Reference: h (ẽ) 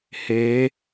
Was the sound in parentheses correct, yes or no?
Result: no